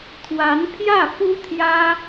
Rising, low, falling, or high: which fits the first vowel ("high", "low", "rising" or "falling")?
rising